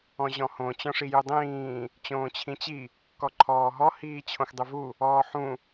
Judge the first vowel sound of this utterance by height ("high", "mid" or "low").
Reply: mid